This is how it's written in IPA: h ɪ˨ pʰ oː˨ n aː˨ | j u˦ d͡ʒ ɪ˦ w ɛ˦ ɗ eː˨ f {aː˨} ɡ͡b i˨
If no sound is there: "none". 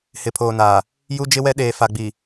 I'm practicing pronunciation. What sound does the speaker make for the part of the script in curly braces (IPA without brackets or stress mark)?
a˨